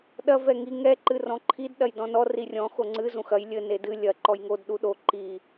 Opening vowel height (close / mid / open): open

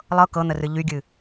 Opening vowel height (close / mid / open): mid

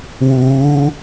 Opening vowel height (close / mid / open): close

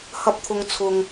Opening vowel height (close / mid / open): open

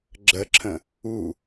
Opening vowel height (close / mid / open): mid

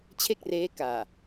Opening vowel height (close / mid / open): mid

